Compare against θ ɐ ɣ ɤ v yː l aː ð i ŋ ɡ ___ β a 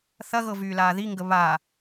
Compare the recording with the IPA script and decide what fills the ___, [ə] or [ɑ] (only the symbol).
ə